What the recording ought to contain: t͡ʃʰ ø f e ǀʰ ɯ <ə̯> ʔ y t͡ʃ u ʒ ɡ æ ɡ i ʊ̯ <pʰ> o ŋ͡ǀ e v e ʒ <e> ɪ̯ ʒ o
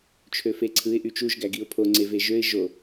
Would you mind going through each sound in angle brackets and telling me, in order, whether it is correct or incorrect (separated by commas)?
incorrect, correct, incorrect